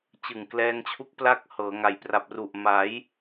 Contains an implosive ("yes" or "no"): no